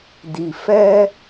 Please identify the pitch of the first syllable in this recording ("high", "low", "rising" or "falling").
low